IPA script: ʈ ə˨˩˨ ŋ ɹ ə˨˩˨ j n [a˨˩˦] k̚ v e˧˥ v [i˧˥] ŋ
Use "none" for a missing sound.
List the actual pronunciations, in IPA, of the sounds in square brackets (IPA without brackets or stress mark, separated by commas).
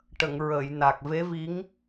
a˨˩, i˧˥